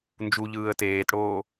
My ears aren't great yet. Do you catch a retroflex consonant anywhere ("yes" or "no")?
yes